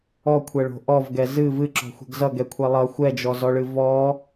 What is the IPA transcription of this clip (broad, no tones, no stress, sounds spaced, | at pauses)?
ɔ kʷʰ ɛ ɭ o̤ ʔ ɔ v ɡ ɛ z ɨ v ɨ ǁ ɔ̤ xʷ ɛ̤ ɡ z ʌ ɡ ɛ kʷʰ ɛ lˠ ʌ xʷ ɛ d͡ʒ ɔ z ɔ ɭ ɨ v ɔ